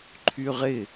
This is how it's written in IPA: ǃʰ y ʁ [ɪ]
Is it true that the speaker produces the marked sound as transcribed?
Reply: yes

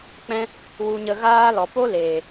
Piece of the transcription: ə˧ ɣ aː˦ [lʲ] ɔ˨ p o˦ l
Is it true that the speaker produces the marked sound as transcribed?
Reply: no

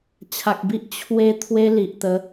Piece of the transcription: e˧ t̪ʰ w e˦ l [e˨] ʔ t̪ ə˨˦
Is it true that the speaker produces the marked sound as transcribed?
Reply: no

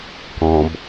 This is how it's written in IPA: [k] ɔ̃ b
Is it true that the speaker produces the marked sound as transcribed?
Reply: yes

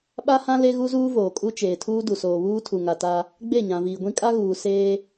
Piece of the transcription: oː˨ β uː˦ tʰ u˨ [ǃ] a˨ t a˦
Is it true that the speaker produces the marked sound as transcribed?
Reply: no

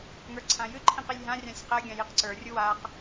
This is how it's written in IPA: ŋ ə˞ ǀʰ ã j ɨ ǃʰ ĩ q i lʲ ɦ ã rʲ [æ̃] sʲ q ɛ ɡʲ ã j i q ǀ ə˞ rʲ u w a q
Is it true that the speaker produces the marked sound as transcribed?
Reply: no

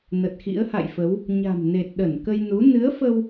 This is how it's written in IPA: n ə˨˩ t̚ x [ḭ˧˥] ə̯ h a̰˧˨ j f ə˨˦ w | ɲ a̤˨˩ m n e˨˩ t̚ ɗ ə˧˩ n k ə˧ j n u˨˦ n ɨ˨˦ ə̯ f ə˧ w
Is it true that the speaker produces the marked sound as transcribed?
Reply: yes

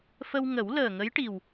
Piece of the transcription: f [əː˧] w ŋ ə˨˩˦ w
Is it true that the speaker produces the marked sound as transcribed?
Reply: no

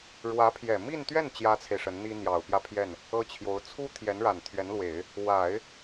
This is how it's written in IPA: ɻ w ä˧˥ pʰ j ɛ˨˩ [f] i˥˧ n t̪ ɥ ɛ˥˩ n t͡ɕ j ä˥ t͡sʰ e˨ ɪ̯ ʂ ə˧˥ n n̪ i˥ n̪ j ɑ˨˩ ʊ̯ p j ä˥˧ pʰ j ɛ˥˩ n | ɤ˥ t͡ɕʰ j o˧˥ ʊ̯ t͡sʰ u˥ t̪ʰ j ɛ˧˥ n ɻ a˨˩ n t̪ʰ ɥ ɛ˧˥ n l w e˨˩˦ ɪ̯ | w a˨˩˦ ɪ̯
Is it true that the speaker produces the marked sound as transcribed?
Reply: no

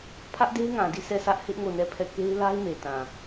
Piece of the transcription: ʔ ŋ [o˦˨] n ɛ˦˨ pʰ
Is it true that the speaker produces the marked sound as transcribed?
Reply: yes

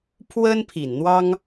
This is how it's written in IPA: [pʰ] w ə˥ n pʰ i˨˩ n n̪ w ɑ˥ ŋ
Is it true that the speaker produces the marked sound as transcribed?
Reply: yes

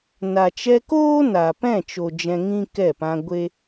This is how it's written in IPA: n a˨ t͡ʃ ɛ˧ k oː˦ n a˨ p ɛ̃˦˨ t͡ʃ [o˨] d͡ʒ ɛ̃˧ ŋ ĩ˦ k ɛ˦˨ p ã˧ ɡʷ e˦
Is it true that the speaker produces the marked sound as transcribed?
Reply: yes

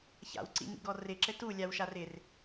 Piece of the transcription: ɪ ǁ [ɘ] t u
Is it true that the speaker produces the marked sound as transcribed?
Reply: yes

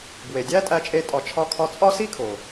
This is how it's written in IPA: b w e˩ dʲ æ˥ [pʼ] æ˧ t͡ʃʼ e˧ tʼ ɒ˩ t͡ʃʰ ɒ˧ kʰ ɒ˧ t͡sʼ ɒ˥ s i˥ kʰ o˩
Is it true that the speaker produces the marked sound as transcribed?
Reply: no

